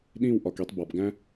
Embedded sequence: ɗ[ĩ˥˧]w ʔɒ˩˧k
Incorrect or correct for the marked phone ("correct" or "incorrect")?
correct